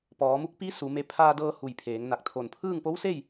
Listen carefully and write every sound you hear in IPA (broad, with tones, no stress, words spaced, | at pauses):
pɔː˩˧mu˧˥k̚ pi˧˥ su˩˧me˧ pʰaː˧dɤː˧ hu˩j pʰeː˩˧ŋna˧˩k̚t̪ʰo˧˩n pʰɯː˥˨ŋpo˧˥wse˥˨j